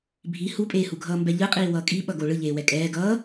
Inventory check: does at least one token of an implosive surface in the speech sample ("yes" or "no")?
yes